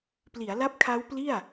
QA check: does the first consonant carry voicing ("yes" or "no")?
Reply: no